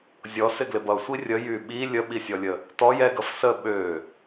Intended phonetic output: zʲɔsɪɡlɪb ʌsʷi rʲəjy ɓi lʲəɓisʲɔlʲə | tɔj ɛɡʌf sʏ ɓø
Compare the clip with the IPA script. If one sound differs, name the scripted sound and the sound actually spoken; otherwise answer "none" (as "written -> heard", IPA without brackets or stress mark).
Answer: ʏ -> ə